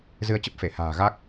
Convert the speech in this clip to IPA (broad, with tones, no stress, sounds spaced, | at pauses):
z ɨ˧ ə̯ t͡ɕ ə˦˥ p̚ f e˧˩ h a̤ː˨˩ ɣ a˦˥ k̚